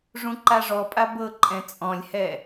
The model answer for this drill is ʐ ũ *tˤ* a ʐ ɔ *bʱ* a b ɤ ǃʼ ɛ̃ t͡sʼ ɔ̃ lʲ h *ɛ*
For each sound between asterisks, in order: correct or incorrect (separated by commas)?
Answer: incorrect, incorrect, correct